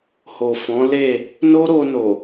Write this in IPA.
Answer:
h o˨ f ɔ̃˨˦ l e˦˨ | n o˦ ɾ o˧ n o˨

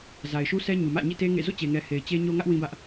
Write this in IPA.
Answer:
z a˨ ɪ̯ ʃ u˦ sʰ ɛ˦ ɲ u˨ m ä̰˦˨ ɲ ḭ˦˨ t e˦ ŋ ḛ˦˨ z o̰˦˨ t͡ɕ e˨ ŋ ɛ˨ h e˨ ɪ̯ t͡ɕ e˦ ɲ o˦ ŋ ä˦ ʔ w ĩ˦ b ä˦ ʔ

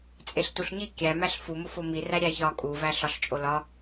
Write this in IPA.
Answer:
t͡sʼ e ɬ t u ɬ ɲ i kʲ æ m æ ɬ f u m o f o m i r æ ɾʲ æ ç ɒ kʼ u v æ ɬ ɒ ɬ t͡ʃʼ o l ɒ

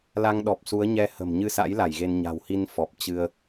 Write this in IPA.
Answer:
l a˧ ŋ ɗ ɔ˨˩ p̚ s u˨˦ ə̯ ɲ ɛ˧ h ə̤˨˩ m ɲ ɨ˧ s a̰˧˥ j l a˧˩ j ɣ e˧ n ɲ a̤˨˩ w h i˧ n f ɔ˨˩ p̚ t͡ɕ ɨ˧ ə̯

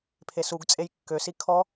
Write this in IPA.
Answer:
pʰ e s u ɡ t͡sʼ e j kː ø s i kʰ ɔ

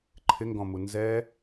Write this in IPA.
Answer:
ǃʰ ɪ ŋ ɡ ɔ̃ m u n z ɛ

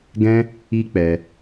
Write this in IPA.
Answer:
ɡ ɛ̃˦ | i˦ k͡p ɛ˧

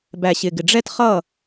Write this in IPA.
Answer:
b æ˨ ɕ ɪ˨ ɡ ɪ˨ ɖ͡ʐ ɛ˦ t χ ʌ˦˨

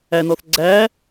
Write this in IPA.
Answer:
æ n ɔ θ ɡ͡ǀ æ

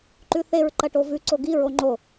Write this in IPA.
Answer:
ǃ ʉ θ e ɹ ǃ ɐ ʈ o v ʉ ǀ o ɡ i ɹ o ŋ͡ǃ o

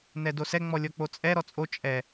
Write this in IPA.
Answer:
n ɛ d o s ɛ ŋ͡m ɔ lʲ ɔ k͡p o t͡sʼ ɛ ɾ ɔ t͡sʼ o t͡ʃʼ ɛ

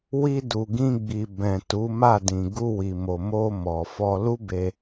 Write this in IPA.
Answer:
w i˧ d u˨ ɡ ĩ˧ ɡ͡b i˨ b ɛ̃˨ t u˨˦ m a˦˨ d ĩ˨ ɡ u˧ w i˨ m o˨ m o˧ m ɔ˨ f ɔ˧ l u˦ b e˧

